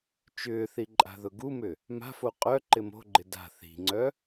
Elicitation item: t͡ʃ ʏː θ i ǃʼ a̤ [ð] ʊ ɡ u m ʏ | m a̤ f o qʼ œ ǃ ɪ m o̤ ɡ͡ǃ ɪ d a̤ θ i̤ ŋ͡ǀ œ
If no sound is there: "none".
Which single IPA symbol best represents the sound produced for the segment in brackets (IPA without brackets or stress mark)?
ð